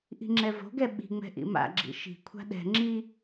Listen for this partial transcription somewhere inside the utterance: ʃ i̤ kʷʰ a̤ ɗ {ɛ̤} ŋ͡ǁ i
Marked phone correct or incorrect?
correct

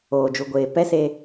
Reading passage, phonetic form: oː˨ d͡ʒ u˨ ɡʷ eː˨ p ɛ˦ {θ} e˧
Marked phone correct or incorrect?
incorrect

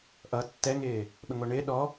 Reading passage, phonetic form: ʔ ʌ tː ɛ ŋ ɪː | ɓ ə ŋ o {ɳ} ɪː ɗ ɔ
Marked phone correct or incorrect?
correct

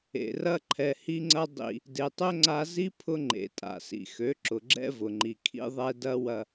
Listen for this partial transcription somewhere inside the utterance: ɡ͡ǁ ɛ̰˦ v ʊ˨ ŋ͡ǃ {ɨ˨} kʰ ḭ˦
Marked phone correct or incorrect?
incorrect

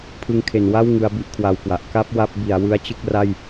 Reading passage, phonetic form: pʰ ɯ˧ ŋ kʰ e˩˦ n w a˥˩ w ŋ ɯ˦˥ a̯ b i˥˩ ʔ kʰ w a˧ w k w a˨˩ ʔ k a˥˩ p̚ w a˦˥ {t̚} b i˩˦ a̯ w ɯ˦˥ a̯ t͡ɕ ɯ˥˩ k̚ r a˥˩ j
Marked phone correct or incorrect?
incorrect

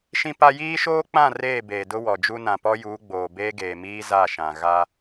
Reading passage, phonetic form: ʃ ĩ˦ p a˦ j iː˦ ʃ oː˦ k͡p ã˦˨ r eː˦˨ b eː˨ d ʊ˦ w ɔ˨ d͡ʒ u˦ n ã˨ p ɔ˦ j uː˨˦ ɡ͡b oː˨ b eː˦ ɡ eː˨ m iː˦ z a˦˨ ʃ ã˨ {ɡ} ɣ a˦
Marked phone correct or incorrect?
incorrect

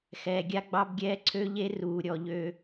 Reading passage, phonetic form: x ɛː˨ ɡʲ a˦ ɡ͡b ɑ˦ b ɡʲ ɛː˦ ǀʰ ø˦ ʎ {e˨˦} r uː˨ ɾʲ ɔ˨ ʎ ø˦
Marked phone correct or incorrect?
incorrect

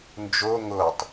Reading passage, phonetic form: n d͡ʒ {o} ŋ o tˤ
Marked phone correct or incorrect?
correct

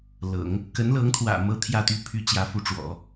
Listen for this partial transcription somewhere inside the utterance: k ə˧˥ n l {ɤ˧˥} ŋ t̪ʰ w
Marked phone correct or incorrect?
correct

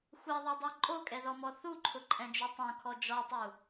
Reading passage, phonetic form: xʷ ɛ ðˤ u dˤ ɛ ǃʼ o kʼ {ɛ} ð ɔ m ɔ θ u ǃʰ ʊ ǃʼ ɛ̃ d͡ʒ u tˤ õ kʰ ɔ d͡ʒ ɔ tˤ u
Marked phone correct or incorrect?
correct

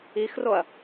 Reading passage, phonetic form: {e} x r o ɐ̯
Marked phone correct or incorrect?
incorrect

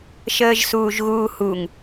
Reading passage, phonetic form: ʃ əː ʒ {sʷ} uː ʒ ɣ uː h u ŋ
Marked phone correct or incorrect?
incorrect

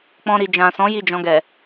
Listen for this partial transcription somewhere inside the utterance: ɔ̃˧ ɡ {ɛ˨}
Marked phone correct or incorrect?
correct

